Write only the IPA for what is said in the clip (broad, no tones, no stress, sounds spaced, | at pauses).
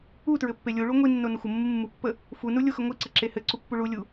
u t ɹ ɘ pː e lʲ u ɭ u ŋʷ i nː o n ə xʷ ə mː u mː u pː ə | f u n u lʲ o x ə ŋʷ i ǀ ɘ ǁ e h ɘ ǀ u pː u ɭ u lʲ u